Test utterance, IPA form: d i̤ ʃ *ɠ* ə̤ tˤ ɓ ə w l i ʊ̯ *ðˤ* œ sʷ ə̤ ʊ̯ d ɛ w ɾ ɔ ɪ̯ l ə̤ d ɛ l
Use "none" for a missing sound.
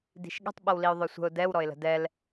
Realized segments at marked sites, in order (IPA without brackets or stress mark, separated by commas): ɠ, ðˤ